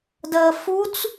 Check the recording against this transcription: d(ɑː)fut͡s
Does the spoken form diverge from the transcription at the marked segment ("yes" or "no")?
yes